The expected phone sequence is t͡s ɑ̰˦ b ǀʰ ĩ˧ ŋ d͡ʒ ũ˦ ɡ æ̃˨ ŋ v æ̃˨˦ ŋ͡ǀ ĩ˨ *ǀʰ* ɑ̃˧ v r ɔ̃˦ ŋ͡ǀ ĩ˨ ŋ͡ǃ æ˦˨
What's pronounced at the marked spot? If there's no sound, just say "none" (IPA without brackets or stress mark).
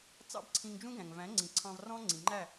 ǀʰ